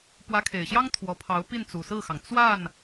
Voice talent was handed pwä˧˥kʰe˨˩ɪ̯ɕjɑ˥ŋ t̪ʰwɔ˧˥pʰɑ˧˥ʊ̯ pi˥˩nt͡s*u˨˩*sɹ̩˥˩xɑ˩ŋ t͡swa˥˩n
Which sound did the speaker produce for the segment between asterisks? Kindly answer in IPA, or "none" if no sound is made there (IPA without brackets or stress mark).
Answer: u˨˩